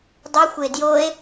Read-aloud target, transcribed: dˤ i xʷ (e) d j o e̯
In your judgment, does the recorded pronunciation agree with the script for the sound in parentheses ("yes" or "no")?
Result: yes